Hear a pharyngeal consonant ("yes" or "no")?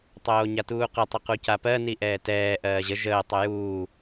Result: no